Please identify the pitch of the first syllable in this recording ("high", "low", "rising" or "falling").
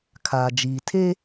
low